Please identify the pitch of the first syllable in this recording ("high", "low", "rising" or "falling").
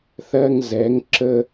high